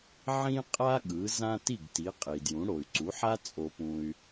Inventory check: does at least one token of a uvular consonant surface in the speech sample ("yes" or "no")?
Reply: yes